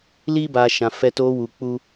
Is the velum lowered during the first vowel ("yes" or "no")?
no